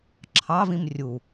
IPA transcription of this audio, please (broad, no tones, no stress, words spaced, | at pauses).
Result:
ǁʰɑ vĩmrʲu